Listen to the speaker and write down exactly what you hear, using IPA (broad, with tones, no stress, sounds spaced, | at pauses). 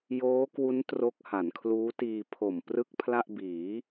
j oː˦˥ k w u˦˥ n t r o˦˥ k̚ h a˩˦ n kʰ l uː˦˥ t iː˧ pʰ o˨˩ m p r ɯ˥˩ k̚ pʰ l a˥˩ ʔ b iː˩˦